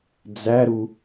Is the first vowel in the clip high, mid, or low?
low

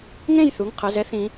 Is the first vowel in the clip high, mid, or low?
mid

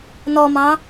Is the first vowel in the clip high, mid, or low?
mid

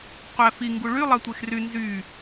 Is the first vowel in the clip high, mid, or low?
low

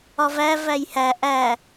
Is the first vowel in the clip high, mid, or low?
low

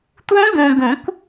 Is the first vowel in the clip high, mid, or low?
high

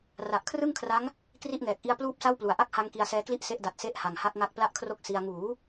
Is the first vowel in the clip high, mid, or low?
low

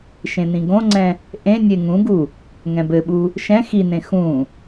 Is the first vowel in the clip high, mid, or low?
mid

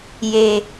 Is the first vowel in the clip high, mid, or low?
mid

